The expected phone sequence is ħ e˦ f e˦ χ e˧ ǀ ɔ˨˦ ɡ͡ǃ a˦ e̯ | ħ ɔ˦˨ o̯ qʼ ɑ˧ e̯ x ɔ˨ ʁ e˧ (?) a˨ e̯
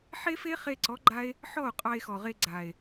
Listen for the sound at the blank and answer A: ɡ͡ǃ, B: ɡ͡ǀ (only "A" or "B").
B